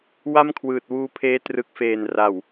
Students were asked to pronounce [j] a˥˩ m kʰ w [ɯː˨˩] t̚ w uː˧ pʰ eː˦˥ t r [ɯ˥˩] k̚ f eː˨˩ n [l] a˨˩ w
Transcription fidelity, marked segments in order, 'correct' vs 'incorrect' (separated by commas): incorrect, correct, incorrect, incorrect